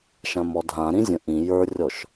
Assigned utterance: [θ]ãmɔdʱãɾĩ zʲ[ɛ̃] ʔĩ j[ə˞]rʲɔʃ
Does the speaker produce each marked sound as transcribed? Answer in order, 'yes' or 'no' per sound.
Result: no, no, yes

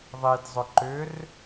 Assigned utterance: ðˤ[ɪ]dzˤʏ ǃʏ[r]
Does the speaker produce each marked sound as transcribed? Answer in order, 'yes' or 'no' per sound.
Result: no, yes

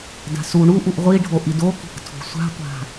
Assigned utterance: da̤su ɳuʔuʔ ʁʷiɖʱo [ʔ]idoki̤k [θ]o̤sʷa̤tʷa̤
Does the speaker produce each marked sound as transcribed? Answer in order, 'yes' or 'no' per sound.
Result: yes, no

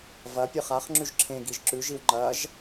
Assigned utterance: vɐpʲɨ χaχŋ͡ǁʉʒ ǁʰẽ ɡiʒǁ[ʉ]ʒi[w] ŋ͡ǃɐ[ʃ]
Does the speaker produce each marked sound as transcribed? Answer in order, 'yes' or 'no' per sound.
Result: yes, yes, no

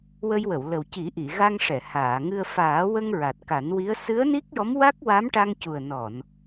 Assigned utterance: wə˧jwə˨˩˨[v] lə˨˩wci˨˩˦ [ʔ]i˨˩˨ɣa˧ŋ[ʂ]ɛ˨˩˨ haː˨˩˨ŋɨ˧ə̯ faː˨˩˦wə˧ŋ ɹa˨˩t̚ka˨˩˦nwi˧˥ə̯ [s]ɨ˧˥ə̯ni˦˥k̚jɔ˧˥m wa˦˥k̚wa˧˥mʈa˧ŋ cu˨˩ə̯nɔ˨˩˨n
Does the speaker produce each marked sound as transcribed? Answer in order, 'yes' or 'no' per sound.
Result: no, yes, yes, yes

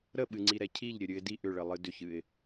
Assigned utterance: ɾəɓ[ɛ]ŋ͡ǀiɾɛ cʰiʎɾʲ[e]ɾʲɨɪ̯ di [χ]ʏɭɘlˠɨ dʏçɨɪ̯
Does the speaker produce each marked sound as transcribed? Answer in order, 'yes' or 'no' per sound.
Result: no, no, no

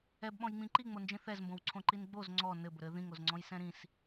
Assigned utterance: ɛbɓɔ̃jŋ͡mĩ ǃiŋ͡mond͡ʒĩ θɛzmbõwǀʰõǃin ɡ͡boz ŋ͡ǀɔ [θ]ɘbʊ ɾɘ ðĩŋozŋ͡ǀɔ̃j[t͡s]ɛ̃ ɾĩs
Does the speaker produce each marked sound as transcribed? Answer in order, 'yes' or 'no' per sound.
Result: no, no

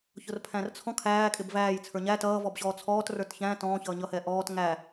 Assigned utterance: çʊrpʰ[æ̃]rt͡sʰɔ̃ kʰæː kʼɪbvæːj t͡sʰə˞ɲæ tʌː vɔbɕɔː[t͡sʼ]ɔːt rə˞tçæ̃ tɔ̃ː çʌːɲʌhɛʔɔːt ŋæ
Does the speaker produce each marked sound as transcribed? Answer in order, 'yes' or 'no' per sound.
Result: yes, no

